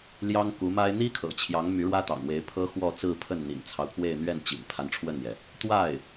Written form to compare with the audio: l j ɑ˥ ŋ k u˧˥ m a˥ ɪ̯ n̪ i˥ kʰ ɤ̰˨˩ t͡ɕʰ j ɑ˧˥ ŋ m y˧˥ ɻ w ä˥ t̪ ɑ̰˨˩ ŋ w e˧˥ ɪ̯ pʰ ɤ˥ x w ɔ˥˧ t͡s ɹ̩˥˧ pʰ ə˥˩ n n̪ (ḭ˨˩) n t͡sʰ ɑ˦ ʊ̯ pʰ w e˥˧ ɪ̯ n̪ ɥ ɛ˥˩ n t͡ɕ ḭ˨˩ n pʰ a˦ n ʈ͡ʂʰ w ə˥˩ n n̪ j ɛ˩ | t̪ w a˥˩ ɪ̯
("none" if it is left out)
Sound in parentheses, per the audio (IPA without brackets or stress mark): ḭ˨˩